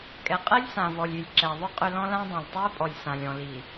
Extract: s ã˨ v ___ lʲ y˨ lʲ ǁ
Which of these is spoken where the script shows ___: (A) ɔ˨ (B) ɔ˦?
A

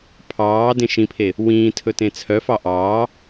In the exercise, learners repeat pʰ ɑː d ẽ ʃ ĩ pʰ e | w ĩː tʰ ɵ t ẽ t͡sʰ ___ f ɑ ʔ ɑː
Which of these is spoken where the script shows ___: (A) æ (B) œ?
B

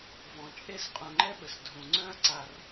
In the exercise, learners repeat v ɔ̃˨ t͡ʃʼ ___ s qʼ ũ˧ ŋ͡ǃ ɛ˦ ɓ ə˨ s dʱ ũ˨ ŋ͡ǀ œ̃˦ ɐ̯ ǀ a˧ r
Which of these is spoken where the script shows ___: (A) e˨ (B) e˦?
B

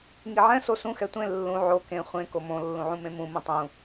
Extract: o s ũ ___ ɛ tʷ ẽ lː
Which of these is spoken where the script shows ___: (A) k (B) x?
B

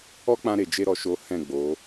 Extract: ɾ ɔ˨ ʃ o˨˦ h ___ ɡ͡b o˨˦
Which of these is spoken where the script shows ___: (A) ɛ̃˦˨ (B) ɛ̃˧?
A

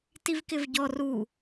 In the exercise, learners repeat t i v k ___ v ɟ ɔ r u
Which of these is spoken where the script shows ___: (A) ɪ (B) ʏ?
A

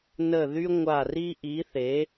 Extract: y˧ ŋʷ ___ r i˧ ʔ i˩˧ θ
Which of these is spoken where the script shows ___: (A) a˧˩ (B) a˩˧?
A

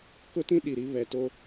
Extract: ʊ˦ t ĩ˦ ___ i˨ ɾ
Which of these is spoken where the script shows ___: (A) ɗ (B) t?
A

